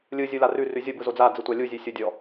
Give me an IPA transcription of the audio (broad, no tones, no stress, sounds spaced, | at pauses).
lʲ ɯ zʲ u l a r ʉ r ʉ zʲ o b ɯ z o d͡z a d͡z ɯ tʷ a lʲ u zʲ ʉ sʲ o dʲ ɔ